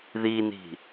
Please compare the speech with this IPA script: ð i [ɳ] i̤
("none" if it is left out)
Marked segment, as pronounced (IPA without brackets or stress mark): n